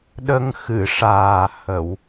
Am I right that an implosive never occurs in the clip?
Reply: no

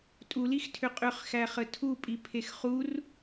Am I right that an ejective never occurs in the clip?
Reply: no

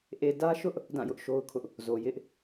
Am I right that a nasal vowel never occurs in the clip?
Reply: no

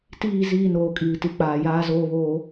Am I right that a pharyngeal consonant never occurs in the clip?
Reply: yes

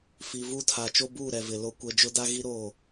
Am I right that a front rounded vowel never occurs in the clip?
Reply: yes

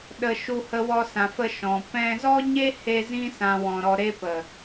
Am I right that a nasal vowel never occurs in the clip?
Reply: no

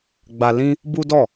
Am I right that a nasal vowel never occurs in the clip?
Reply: no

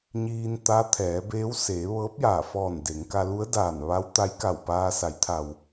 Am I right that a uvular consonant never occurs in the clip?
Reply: yes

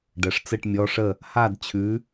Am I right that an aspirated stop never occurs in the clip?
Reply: no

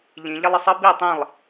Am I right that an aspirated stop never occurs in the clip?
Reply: yes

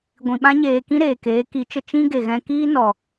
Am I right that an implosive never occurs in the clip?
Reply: no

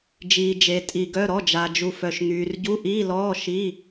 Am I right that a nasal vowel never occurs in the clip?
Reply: yes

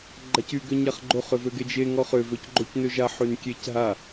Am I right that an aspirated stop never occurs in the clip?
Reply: yes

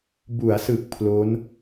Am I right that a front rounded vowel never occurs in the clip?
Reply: yes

